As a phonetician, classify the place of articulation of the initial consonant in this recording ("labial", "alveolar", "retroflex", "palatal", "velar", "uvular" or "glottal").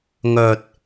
velar